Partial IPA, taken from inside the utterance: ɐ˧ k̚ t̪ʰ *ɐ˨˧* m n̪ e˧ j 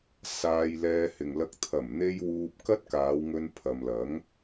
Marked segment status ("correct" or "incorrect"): incorrect